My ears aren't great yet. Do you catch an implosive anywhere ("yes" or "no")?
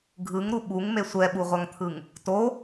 yes